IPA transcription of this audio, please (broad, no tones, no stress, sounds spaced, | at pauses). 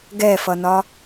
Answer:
ɡ ɛ f ʌ n ɒ